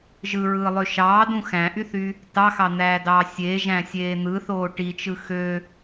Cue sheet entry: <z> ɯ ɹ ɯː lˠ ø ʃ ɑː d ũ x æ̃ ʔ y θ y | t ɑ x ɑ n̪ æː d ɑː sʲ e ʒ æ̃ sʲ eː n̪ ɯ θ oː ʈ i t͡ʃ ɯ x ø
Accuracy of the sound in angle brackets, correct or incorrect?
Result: incorrect